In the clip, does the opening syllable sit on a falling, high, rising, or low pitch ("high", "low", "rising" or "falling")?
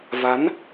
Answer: rising